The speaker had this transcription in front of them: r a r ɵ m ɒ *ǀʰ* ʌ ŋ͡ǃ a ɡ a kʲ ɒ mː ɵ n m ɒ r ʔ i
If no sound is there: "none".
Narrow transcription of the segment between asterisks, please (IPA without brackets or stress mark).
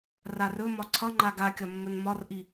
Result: ǀʰ